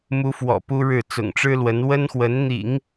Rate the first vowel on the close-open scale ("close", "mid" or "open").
close